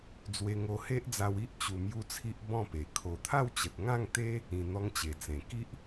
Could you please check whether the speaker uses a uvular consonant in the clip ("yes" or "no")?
no